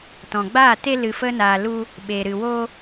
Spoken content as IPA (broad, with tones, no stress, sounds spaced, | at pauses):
t ɔ̃˨ ɡ͡b aː˦˨ t e˦ l ɨ˨ f ə˧ n aː˨ l u˦ | ɓ e˨ ɾ ɨ˨ w oː˦